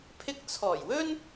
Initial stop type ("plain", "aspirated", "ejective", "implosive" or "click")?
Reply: aspirated